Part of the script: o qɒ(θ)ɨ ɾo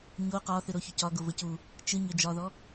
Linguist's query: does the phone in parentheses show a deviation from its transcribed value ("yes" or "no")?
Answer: no